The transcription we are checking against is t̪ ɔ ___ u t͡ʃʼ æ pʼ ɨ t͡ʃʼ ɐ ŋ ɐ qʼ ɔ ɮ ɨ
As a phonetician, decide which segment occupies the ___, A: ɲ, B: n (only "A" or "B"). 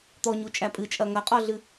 A